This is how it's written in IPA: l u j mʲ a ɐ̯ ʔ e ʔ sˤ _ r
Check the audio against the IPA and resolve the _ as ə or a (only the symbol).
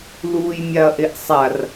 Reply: a